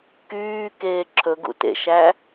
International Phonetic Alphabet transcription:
kyːkeː ǁʰɵɡṵ tḛʃæ

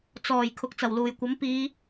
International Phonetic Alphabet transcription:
t͡sɔː˨˩j kʰʊ˨k̚t͡sɐ˨˩wluː˨˩jkʷɐ˨˥m piː˨˧

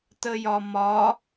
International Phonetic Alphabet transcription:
təjɒmɒ

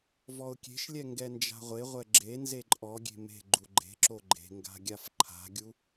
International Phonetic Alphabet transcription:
vɔʊ̯kʲe̤ʃlʲɛ ŋɡɛnd͡ʒa̤ʁʷeʁʷɛ ɡ͡ǁe nzeǃʼɔɡʲe̤ me̤ ɡ͡ǃuɡ͡ǃe̤ǁo ɡ͡ǃe̤ŋɡa̤ ɡʲafǃʰa̤ɡʲu

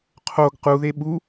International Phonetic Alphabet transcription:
qʰoɡ quðe ɓu

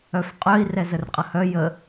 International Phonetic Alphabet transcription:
œfqʼœi̯ rɛzərqʼəhœ jə

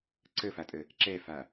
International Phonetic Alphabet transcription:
ǀəfatʼə | ǁɛfa

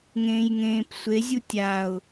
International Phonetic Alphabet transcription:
ŋẽːjŋẽːpsʷe zʲutʲaʊ̯

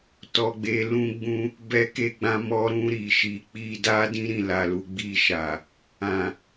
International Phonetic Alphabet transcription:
tɔ˨ɡ͡be˨ lũ˧ɡ͡bũ˧ | bɛ˧ke˧ɡ͡bã˧ mɔ˧ɾũ˧ ɾi˨ʃi˨ k͡pi˧da˦ dĩ˦ɾĩ˦˨la˨lu˨ ɡ͡bi˧ʃa˨ | ã˨

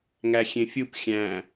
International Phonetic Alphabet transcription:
ŋæxʲẽfʲup xʲæ̃

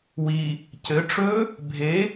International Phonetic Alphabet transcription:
wi | cɘ ʈ͡ʂɵ | bʱe

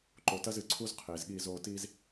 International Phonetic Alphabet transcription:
ǃo˨tɐ˦zɨ˨ǀʰu˦z qʰeː˨zɠiː˦˨zoː˦ tiː˦z

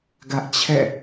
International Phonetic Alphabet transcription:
ɡä˦ʔt͡ɕʰɛ̰˦˨

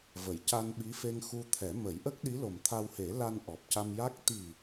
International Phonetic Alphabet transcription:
və˨˩˨jca˧nɓi˧˥fe˧ŋ xu˧t̪ʰɛ˨˩˦ mə˨˩˦jʔə˦˥k̚ɗi˧˥ lo˨˩mt̪ʰa˧whe˨˩˦ la˧nʔɔ˨˩p̚ca˧mja˦˥k̚ t̪i˨˩

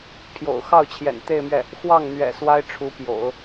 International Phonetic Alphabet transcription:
pʰjo̰˨˩ʊ̯xɑ˥˩ʊ̯t͡ɕʰjɛ̰˨˩n t̪e˥˧ɪ̯mɥɛ˥˩ | xwɑ˥˩ŋ n̪ɥɛ̰˨˩ swa˥ɪ̯ʈ͡ʂʰu˧˥pjo̰˨˩˦ʊ̯

